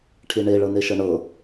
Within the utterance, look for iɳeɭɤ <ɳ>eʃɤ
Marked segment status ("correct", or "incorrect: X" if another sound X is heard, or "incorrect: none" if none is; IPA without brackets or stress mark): incorrect: n